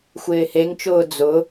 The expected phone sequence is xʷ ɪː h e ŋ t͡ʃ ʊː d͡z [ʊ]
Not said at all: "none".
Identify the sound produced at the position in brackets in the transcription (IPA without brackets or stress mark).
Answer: ʊ